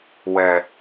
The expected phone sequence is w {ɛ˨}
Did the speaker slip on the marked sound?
no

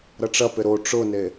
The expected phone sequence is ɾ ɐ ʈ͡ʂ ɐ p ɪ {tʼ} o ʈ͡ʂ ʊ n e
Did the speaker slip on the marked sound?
yes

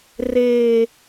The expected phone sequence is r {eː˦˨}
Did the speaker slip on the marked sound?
yes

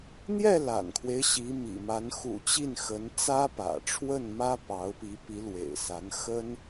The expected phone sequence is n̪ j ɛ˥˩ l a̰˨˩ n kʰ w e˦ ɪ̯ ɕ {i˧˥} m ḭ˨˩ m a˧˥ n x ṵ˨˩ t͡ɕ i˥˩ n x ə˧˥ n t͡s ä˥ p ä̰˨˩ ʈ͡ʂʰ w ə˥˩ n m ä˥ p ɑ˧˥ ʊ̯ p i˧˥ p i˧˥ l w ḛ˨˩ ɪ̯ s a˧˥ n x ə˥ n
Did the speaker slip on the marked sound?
no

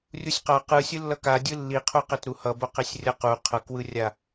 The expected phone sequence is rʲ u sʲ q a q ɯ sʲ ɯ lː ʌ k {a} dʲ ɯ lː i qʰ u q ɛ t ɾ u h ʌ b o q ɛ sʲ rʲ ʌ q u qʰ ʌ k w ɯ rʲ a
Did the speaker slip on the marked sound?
no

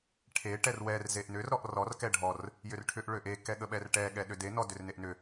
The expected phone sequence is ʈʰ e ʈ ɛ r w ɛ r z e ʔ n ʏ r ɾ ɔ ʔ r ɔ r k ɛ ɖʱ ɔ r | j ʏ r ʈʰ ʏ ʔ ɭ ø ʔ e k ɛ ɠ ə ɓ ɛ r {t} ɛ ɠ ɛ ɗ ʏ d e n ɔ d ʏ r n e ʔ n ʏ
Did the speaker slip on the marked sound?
yes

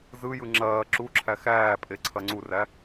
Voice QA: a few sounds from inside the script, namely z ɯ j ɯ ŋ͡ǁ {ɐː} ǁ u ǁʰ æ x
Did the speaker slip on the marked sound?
no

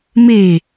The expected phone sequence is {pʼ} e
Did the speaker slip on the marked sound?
yes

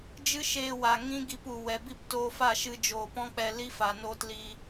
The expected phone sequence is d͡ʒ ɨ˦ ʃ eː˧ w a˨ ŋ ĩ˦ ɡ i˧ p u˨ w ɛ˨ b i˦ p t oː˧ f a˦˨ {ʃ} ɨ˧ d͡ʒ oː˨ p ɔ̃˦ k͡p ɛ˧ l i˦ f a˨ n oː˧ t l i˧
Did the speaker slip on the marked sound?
no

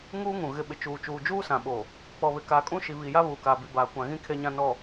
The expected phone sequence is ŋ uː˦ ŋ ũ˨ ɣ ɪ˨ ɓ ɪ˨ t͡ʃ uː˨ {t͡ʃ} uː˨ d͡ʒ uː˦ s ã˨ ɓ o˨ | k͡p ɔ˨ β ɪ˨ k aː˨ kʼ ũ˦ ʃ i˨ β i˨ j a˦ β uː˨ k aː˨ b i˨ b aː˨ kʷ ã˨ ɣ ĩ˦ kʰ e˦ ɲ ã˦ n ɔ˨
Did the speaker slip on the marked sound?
no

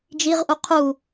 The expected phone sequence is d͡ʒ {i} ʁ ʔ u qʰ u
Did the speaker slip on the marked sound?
no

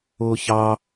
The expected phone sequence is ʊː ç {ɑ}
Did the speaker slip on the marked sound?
no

